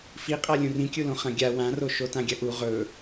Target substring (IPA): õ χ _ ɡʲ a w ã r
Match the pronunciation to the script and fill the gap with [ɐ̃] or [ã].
ɐ̃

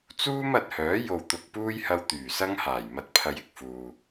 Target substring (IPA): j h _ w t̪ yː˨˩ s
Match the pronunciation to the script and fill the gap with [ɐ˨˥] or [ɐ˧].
ɐ˧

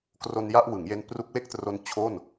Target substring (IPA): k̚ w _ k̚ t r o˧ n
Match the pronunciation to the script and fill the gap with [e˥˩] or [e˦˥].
e˥˩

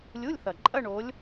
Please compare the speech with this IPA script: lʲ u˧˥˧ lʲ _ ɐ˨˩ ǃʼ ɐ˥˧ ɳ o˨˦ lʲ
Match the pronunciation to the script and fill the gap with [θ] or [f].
θ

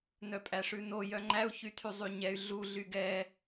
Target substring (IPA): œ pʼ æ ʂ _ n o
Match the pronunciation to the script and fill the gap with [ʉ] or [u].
ʉ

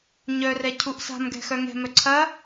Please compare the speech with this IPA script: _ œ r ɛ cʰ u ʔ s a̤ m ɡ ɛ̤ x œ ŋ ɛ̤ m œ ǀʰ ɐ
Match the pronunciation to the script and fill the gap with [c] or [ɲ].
ɲ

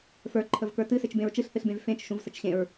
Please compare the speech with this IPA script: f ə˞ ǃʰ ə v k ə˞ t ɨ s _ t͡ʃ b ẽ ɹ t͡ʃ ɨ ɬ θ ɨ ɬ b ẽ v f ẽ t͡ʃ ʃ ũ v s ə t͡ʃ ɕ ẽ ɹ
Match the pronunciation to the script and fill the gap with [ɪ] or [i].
ɪ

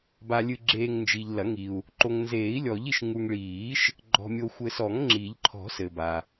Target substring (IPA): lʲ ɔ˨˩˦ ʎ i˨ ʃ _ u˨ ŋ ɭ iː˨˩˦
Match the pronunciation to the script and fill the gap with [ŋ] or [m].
ŋ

